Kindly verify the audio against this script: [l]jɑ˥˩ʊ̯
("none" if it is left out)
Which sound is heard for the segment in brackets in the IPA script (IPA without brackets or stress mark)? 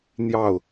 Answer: n̪